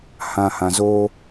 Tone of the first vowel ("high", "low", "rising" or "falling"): low